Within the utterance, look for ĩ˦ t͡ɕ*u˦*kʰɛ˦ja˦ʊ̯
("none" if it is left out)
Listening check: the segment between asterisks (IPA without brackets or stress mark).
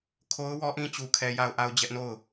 u˦